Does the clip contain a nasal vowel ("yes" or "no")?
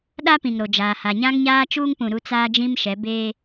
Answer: yes